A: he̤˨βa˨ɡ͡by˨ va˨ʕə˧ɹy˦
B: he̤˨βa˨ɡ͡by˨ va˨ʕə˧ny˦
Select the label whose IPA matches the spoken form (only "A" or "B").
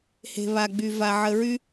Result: A